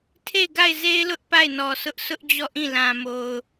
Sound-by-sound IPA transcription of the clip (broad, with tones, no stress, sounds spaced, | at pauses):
tʰ e˦˨ ɪ̯ ɡ a˦˨ ɪ̯ z e˦ ɪ̯ l ʊ˦ ʔ p a˦˨ ɪ̯ n ɔ˨ s ʊ˦ ʔ sʰ ʊ˦ ʔ d͡ʑ ɔ˦˨ ʔ ĩ˦˨ l ã˨ m o˨ ʊ̯